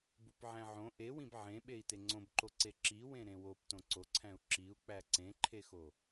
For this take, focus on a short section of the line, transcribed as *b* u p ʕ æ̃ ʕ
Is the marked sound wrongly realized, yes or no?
no